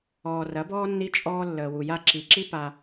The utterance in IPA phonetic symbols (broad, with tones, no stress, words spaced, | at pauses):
ɔː˨rɐ˨˦bɔː˦ nːi˦t͡ʃʼɔː˦ lːəː˨wu˨ja˦ ǁi˨ǁi˦ pa˦